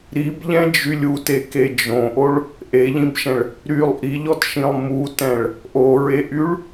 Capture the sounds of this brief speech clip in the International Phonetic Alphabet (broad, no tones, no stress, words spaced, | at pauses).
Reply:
ɾibʎɛ̃d͡ʒylʲ uteke d͡ʒõʔoɭ | ʔeʎĩbʃɛ̃ɭ | ɾylˠ ʔiʎɔtʃĩlˠ mutɛ̃ɭ | ʔoɹeʔyɭ